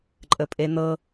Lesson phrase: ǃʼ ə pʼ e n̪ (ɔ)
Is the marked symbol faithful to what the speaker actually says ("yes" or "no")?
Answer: no